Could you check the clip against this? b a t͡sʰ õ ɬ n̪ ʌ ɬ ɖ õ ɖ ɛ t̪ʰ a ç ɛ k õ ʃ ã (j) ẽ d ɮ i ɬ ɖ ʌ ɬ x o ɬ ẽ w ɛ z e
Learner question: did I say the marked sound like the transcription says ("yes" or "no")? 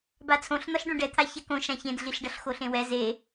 no